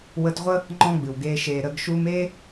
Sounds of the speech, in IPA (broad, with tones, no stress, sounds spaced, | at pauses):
w ə˧ t ʁʷ ə˦ | ŋ͡ǃ ɔ̃˦ ɡ͡b ɨ˨ w ɡ eː˧ ʃ eː˨ ɾ ə˧ ɡ ʃ u˧ m e˦